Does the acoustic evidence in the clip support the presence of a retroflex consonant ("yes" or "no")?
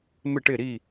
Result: yes